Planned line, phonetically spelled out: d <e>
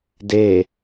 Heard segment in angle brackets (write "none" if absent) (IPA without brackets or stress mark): e